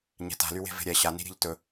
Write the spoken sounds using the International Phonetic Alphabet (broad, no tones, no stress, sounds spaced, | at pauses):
ɲ ɛ̤ t a̤ l y w e̤ v e̤ ɾʲ ɛ ɕ a n i̤ ɾʲ e̤ ʎ t ɵ